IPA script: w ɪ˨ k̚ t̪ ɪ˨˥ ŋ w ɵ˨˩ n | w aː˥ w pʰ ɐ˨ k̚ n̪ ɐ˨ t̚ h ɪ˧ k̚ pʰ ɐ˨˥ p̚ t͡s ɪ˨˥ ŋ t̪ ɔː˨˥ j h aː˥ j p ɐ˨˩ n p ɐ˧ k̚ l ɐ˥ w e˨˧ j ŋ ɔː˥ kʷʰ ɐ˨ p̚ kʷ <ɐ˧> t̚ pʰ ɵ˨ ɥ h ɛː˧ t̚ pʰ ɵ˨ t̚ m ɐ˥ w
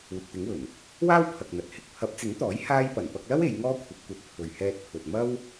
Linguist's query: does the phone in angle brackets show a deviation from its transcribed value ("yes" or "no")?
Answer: no